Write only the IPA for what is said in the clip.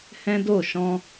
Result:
hɛ̃˦do˦˨ ʃɔ̃˧

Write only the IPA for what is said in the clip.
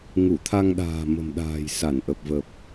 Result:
ŋu˧˩t̪ʰa˧ŋɗa̤ː˨˩ mə̤˨˩mɗa̤ː˨˩j sa˧˩nʔə˨˩p̚vəː˨˩p̚

